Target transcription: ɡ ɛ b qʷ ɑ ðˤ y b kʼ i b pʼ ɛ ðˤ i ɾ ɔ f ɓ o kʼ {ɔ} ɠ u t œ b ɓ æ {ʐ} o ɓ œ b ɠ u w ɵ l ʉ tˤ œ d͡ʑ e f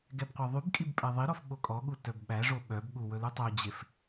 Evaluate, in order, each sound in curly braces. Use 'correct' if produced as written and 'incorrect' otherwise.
correct, correct

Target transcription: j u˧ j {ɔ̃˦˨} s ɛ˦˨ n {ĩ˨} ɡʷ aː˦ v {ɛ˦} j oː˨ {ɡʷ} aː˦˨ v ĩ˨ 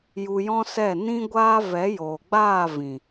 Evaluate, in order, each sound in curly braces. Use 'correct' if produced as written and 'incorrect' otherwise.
incorrect: ɔ̃˦, incorrect: ĩ˦, incorrect: ɛ˨˦, incorrect: ɡ͡b

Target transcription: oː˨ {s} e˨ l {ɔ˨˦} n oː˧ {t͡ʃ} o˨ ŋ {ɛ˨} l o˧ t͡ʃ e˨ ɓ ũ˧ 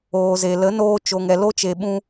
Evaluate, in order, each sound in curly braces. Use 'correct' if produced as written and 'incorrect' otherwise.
incorrect: z, incorrect: ə˨˦, correct, correct

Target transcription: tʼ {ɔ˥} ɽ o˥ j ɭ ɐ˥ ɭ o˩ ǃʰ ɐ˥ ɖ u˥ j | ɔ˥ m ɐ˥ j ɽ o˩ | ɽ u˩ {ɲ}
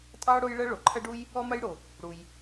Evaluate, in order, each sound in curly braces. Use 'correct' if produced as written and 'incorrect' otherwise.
incorrect: ɑ˥, incorrect: j

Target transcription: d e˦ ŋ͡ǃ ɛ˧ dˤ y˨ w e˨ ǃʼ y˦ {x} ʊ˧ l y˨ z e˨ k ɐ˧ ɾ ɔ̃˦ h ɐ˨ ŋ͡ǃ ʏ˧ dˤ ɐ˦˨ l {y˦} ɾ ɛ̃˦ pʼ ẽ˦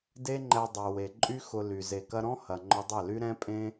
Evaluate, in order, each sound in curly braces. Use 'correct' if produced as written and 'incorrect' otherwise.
correct, correct

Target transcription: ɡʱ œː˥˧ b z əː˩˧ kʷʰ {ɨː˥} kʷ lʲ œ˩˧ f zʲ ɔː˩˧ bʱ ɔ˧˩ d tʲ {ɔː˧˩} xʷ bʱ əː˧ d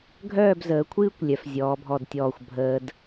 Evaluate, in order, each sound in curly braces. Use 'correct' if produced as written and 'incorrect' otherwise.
correct, correct

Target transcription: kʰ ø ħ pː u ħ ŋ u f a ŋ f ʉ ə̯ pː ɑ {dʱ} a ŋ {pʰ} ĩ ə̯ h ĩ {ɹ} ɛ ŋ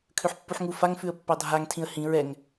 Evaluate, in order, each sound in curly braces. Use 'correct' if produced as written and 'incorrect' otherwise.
correct, incorrect: tʰ, correct

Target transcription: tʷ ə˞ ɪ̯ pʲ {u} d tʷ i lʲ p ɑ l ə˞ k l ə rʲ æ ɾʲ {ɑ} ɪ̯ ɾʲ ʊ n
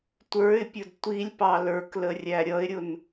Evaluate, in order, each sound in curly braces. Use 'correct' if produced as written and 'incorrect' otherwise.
incorrect: ʊ, incorrect: ʌ

